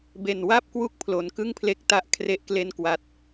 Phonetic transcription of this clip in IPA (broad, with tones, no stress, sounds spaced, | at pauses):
b e˨˩ n w a˥˩ p̚ k w u˦˥ k̚ pʰ l o˩˦ n k ɯ˥˩ ŋ pʰ l e˦˥ k̚ t a˦˥ ʔ kʰ r e˥˩ ʔ k l e˥˩ n k w a˨˩ t̚